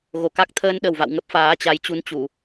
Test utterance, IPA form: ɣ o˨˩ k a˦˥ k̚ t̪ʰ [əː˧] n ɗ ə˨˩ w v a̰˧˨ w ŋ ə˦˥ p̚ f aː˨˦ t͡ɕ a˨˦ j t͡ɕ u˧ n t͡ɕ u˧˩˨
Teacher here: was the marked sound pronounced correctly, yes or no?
yes